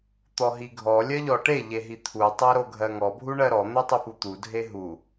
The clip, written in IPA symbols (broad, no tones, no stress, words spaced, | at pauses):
t̪ɔɦiɡʱɔ lʲɜʎɔʈe ʎeɦit̪ʰu tˤɜɾoɡʱɜŋɔ bʱuɳɜɾɔ n̪otˤiput̪u dʱeɦu